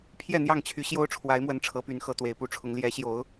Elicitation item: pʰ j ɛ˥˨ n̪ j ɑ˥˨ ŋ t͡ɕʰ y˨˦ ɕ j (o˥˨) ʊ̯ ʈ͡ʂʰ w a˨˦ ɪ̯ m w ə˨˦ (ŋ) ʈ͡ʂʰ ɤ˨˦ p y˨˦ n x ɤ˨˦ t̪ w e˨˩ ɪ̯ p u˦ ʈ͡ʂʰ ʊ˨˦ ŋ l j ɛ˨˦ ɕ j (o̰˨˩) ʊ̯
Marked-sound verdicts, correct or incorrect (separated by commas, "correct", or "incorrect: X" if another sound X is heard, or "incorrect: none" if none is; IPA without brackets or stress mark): incorrect: o˦, incorrect: n, incorrect: o˨˦